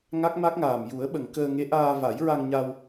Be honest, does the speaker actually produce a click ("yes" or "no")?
no